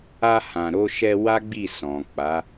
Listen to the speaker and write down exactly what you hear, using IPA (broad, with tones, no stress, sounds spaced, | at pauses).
a˧ h ã˨ ɾ o˧ ʃ ɛ˧ w a˦ ɡ͡b i˦˨ s ɔ̃˨ k͡p a˨˦